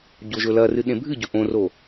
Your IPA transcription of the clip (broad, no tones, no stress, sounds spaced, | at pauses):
ɟ o ʒ ɵ l ɐ r ɨ ɗ ẽ bʱ ɨ ɟ ɵ ʔ õ r o